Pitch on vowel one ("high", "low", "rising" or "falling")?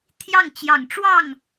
falling